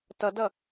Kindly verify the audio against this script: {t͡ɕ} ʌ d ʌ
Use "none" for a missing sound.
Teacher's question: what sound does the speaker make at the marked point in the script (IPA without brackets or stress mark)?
t